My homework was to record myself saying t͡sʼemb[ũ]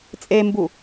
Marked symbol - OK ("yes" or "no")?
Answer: no